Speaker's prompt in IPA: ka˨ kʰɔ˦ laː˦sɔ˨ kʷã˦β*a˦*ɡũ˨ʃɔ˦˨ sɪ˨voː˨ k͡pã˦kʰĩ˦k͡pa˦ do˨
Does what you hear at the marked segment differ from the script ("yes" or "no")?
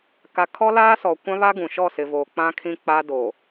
no